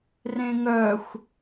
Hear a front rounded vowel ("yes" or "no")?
yes